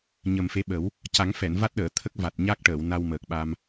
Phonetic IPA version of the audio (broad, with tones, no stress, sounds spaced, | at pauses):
ɲ ə˨˩ m f e˧˥ ɓ ə˨˩˦ w | c a˨˩˦ ŋ f ɛ˨˩˨ n v a˦˥ t̚ ɗ əː˨˩˨ t̪ʰ ə˦˥ k̚ v a˨˩ t̚ ɲ a˦˥ k̚ ʈ əː˨˩˨ w n a˧ w m əː˨˩ k̚ ɓ a˧ m